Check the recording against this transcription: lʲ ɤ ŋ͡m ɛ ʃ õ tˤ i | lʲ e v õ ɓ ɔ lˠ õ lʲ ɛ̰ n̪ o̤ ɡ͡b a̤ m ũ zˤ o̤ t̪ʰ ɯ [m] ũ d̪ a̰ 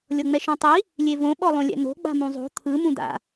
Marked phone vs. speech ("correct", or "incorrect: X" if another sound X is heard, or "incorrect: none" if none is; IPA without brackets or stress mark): correct